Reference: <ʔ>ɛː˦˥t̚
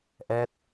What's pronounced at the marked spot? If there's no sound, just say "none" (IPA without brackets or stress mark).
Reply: ʔ